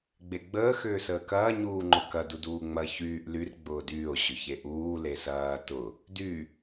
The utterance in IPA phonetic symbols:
ɡ͡beɡ͡bəː xʏːsəːkɐː ɲuːŋ͡ǃʊkɐ duduːŋ͡mɐ çyːʔ lyr ɡ͡bʊːdyːo̯ ɕʏçeʔuː lesɐː tʊ | dy

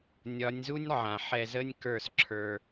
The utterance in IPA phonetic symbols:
nʲɒ˨˦nʲzu˦nʲ ʕã˨ħɛ˧ zə˦nʲkə˞˦˨sǁʰə˞˧

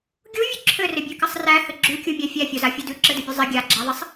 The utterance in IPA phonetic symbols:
ɡʲuvʲʉ ǁʰɘrɪbʲʉkɪsˤ ræhɘ ɡ͡ǁʉkʲumʲæ fʲæfʲozafʲu dʉǁɘdɘbʲʉ zˤɪ ɡʲaɡ͡ǁæðˤɪsˤ

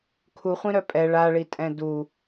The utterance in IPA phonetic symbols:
kʰuχʷĩɾœ pʼɛ ɭaɭitʼɛ̃ du

